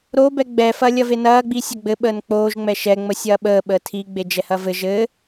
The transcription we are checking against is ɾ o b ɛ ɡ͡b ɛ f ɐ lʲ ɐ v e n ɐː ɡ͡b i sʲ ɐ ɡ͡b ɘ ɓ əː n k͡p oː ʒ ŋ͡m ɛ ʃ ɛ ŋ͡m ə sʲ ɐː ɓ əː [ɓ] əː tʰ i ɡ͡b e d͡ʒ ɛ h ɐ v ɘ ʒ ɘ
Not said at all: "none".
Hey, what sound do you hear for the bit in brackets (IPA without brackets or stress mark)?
ɓ